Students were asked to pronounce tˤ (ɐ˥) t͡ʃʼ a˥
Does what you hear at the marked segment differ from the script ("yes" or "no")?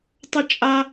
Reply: no